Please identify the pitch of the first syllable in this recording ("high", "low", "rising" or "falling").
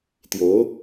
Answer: rising